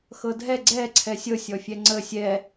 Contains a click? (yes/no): yes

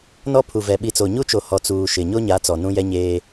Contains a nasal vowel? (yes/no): yes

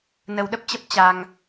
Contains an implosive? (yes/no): yes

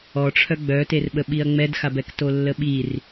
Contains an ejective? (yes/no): no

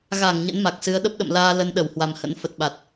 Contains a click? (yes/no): no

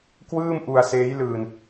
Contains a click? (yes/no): no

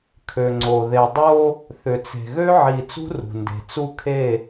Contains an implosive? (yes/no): no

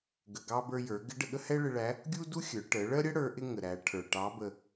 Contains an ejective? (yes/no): no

